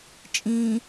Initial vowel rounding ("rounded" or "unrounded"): unrounded